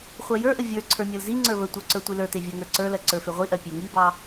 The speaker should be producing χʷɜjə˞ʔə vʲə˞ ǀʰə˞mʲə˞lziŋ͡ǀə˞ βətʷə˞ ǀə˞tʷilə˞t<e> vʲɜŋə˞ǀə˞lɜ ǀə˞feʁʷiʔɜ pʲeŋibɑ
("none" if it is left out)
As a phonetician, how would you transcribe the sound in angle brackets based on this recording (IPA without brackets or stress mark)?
e